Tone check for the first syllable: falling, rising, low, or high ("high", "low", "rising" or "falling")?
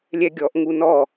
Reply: high